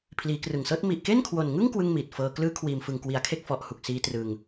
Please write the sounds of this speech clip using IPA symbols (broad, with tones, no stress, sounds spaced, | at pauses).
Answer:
pʰ l iː˩˦ k r ɯ˨˩ ŋ s ɤː˦˥ t̚ m i˨˩ ʔ k e˥˩ n kʰ w o˨˩ n ŋ ɯ˥˩ ŋ k w ɯ˥˩ ŋ m iː˨˩ t̚ f ɤː˧ k l ɯː˦˥ kʰ w iː˨˩ m f ɯ˨˩ ŋ k w i˩˦ a̯ kʰ e˥˩ k̚ f ɔ˨˩ ʔ h u˨˩ k̚ s iː˦˥ t r ɯ˧ ŋ